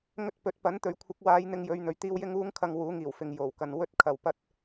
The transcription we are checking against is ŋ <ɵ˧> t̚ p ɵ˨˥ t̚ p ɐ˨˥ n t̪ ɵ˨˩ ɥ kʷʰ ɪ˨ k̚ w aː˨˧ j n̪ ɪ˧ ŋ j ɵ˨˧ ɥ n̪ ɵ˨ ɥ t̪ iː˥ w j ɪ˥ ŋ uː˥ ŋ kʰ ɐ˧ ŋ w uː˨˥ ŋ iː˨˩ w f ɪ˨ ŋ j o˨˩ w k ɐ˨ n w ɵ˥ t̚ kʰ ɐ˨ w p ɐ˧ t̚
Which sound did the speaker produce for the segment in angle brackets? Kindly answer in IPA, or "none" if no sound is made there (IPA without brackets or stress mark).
ɵ˧